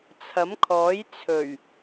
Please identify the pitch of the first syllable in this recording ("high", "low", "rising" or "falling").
rising